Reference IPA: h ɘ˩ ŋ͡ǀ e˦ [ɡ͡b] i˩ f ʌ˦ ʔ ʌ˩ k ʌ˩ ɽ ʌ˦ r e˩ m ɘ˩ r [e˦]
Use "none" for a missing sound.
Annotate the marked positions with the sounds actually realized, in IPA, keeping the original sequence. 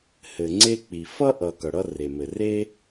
k͡p, e˦

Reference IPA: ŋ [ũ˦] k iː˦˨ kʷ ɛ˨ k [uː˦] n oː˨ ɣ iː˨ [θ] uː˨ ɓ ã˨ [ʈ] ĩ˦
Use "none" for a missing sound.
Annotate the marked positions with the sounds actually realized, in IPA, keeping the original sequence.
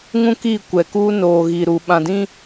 ũ˦, uː˦, ɾ, d

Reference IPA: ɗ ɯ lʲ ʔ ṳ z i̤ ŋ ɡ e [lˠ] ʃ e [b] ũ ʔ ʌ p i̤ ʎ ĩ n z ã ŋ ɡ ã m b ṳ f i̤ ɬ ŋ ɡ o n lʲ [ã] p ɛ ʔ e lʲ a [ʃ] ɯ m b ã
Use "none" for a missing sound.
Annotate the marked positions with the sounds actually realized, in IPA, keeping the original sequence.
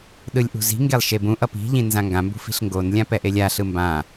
lˠ, b, ã, ɬ

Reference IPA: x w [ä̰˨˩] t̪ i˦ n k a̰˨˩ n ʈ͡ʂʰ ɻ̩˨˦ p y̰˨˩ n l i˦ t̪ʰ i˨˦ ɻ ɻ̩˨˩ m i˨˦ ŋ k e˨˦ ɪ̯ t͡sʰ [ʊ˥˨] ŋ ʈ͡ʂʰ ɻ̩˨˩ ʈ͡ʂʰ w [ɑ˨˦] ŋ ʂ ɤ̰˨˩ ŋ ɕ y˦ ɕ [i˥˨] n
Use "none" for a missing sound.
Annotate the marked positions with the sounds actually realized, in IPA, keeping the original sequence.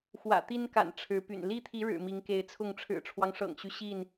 ä̰˨˩, ʊ˥˨, ɑ˦, i˥˨

